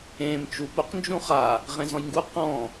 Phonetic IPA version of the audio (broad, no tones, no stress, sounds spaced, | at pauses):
ẽ m t͡ʃ u p ʊ q n d͡ʒ ũ χ a | ʁ ẽ z ɔ̃ j ŋ ɡ u q ɔ̃